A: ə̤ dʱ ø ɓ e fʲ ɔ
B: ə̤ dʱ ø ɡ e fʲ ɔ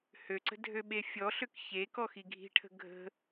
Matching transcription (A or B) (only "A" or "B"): A